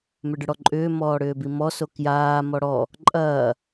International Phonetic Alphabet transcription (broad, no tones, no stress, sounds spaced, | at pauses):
m ʏ ɖ ʏ ɽ ɔ ǃʼ ʏː m ɔː ɽ ʏː b i m ɔ s o k j aː m ɔ ɽ ɔ | ǃʼ ɐː